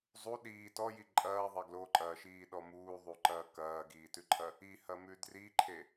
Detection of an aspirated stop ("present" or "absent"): present